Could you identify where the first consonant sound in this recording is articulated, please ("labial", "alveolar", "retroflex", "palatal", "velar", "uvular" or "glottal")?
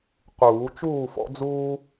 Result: uvular